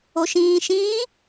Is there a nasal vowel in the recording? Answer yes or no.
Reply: yes